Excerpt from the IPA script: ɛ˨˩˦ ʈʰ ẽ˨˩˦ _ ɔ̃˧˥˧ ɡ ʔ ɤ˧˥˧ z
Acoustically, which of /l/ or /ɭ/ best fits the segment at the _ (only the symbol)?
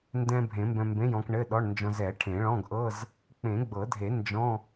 ɭ